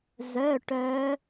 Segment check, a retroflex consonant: present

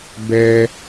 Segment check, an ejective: absent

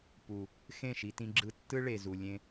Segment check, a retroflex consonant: present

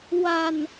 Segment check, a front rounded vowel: absent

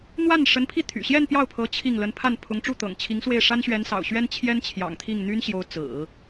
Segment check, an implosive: absent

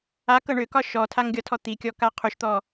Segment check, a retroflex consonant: present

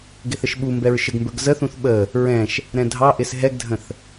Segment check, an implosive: present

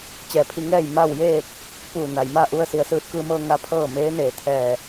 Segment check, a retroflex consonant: absent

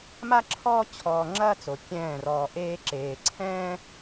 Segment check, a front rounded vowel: absent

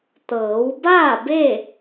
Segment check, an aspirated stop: absent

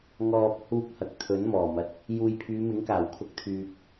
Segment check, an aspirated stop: present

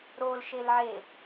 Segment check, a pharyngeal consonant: present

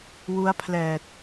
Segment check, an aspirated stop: present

